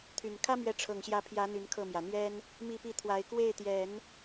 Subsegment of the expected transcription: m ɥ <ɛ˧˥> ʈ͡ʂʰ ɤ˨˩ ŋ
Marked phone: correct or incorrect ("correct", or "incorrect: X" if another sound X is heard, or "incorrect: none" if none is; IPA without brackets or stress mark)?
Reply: correct